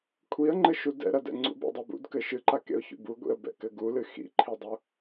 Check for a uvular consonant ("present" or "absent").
absent